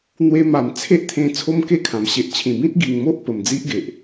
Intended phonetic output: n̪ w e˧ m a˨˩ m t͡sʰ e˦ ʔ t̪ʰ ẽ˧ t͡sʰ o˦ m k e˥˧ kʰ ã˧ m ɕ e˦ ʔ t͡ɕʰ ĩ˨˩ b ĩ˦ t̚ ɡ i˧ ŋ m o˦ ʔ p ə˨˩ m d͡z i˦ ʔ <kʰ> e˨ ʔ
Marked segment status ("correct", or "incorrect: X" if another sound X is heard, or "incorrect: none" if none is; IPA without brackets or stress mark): incorrect: ɡ